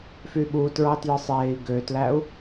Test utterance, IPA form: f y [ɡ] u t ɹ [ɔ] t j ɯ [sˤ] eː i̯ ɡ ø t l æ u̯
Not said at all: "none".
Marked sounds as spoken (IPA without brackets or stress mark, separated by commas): ɓ, ɑ, sˤ